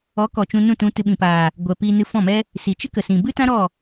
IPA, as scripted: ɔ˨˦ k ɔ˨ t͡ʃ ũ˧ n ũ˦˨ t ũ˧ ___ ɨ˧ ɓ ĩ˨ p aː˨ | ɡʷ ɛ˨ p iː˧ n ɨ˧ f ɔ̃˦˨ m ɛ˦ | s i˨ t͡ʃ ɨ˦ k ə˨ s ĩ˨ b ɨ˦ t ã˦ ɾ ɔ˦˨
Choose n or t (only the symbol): t